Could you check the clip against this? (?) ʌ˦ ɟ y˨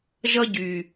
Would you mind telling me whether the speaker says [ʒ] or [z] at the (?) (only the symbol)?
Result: ʒ